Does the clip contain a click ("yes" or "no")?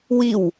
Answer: no